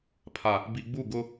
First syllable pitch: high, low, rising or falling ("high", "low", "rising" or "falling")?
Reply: low